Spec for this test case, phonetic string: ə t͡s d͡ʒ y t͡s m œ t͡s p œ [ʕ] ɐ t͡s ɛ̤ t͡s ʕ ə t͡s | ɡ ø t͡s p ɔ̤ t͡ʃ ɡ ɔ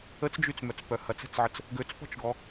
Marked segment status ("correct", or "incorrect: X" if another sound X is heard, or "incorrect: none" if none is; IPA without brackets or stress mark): incorrect: h